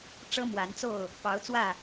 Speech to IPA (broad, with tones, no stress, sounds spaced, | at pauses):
ʈ͡ʂ ɤ˦ m w a˨˦ n t͡s o˥˨ ʊ̯ | p ɑ˨˦ ʊ̯ t͡s w ä˥˨